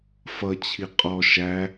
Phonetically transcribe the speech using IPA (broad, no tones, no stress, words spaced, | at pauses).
fʌt͡ɕʰi qʼɔ ʃæ